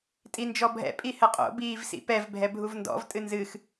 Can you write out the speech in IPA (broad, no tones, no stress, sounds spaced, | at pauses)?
tʼ i n d͡ʒ ɔ bʱ ɛ̰ pʼ i h ɘ qʼ o̰ b iː v s ḭ p ɛ v bʱ ɛ bʱ u v n d ɔ̰ v tʼ ɨ n z ɨ x